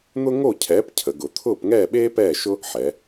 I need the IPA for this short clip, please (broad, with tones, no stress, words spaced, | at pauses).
n̪ʊ˥ ŋo˥˨cʰɛː˨˥pcʰə˩˧ɡʊ˩˧ t̪ʰʊː˥˨pŋɛː˥˨ɓeː˥ pɛː˥˨ʃʊ˥ | ħɛ˩˧